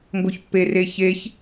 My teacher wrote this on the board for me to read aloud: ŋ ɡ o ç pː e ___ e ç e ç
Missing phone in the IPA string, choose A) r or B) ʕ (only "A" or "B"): A